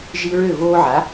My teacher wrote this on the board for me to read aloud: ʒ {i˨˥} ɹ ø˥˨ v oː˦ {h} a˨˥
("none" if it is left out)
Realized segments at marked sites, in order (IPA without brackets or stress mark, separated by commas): i˦, ʕ